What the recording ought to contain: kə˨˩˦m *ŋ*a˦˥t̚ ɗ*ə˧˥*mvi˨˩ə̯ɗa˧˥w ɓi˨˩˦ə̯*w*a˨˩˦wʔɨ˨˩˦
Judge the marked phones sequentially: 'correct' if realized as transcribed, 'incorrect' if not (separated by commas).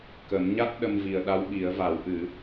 incorrect, incorrect, incorrect